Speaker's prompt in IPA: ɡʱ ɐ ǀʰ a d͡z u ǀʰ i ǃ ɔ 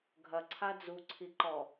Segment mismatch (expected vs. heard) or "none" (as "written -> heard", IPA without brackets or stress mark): none